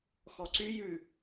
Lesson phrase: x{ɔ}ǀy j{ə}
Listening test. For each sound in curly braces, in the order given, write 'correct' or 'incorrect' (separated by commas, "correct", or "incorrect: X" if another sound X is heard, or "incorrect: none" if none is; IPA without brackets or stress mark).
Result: correct, incorrect: ʉ